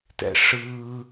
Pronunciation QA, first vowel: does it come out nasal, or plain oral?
oral